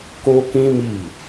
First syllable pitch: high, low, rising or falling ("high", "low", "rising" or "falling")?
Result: high